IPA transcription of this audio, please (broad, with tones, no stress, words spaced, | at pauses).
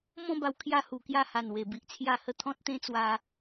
mɔ̃˥˧ba˧w kʰja˥˧hu˨˩kja˥˧ha˨˩n we˨˩ bi˨ʔt͡sʰja˥˧hə˦ t̪ʰɔ̃˦t̚t̪ẽ˦ t͡swa˧